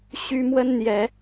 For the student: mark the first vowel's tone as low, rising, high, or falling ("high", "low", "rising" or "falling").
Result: high